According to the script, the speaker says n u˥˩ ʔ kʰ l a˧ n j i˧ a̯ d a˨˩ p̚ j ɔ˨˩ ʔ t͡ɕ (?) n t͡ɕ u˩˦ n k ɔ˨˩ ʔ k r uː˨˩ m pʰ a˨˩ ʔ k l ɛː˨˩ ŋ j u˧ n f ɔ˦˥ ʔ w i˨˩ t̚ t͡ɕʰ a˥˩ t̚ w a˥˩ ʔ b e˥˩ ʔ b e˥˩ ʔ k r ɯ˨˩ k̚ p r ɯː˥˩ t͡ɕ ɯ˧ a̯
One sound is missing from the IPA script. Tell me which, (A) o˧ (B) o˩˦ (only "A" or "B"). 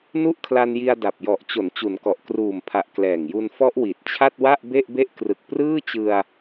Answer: B